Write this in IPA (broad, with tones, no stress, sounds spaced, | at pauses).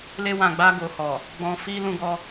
l e˦ w ã˧ ɡ͡b a˦ ɡ o˧ h ɔ˨ | ɡ͡b ɔ̃˧ f i˦ l ũ˧ ɡ ɔ˧